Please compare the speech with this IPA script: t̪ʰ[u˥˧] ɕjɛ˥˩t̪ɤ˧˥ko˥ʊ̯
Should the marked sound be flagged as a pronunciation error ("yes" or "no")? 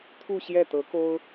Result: no